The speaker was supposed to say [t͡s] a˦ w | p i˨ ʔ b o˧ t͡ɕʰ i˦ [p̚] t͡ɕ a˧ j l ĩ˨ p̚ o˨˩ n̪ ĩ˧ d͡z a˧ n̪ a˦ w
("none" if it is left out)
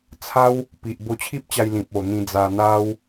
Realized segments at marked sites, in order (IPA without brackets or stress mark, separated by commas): t͡sʰ, p̚